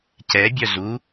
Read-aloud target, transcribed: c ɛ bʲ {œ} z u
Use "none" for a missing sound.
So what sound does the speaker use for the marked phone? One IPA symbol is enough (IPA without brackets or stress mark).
œ